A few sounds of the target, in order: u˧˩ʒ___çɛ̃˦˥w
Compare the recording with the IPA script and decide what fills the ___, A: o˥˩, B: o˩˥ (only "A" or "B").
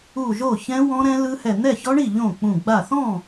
A